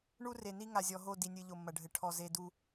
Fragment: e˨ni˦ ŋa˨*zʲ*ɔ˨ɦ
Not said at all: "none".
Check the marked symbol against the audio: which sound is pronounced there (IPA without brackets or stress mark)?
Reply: zʲ